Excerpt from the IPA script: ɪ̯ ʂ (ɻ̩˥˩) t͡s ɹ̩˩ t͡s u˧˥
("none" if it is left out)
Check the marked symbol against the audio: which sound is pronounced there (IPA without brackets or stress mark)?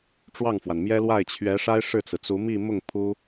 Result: ɻ̩˥˩